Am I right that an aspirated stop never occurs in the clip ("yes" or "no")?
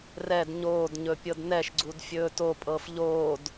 yes